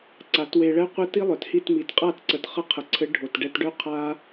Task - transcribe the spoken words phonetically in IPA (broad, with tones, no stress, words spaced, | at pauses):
ǀa˨˦twe˧ɭɛ˦qʷɘ˦ ti˦lˠœ˨thi˦˨tmi˨˦t qʼa˦˨t ǀə˧t χə˧qʰə˨ǀʰɘ˨˦ ɖʱo˨tɖɛ˧tɖœ˦ qʰa˦